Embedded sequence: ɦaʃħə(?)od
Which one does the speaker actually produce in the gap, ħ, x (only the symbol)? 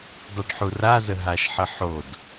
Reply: ħ